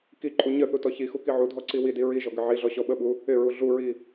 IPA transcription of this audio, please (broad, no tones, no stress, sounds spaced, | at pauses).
k i ǃʼ u ɲ ə θ u t ɔ ç i x u k i ʕ u dʱ ɔ ǀ i w i d i ɹ i ʒ ɔ ɡ ɪ ʕ i ɮ ɔ ɕ ɔ ɓ ə ɓ u | ɪ ɹ u ɮ u ɹ i